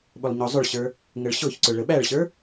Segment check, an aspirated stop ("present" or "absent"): absent